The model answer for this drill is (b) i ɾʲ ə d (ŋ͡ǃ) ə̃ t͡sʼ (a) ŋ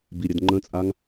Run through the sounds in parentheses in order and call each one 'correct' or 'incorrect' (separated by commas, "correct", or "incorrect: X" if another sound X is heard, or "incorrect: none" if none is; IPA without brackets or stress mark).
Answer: correct, correct, correct